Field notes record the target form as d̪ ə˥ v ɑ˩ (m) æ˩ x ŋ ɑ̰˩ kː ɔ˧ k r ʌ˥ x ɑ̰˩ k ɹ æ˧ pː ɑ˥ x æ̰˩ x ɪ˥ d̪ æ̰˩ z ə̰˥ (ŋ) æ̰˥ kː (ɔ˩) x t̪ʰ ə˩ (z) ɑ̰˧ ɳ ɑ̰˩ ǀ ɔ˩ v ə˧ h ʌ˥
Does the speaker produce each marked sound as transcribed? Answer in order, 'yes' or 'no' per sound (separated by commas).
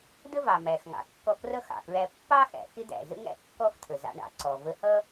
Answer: yes, yes, no, yes